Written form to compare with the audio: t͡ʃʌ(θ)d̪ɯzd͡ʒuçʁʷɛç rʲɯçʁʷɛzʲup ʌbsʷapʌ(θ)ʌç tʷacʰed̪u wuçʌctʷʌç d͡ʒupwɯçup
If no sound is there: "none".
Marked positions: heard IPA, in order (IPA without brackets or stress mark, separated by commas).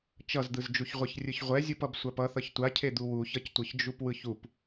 z, θ